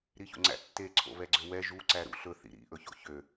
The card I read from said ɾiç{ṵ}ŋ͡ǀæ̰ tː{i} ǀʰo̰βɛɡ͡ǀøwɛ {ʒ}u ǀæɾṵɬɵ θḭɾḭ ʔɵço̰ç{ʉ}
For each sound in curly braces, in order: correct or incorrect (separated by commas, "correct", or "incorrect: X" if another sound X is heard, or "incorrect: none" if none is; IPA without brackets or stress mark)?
incorrect: o̰, incorrect: e, correct, incorrect: ø